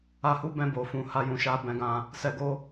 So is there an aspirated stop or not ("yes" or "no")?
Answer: no